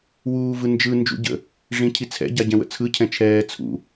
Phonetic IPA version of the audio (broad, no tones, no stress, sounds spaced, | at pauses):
w uː v ɯ n d͡ʒ ɯ n d͡ʒ ṵ ɟ ə̰ | ʐ ĩ cʰ i t͡sʰ ɛ̰ ɟ a ɟ ɛ̃ w ə̰ t͡sʰ ɯ cʰ ɛ̃ t͡ʃʰ ɛː t͡sʰ ṵ